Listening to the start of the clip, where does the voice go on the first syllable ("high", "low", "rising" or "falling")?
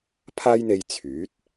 high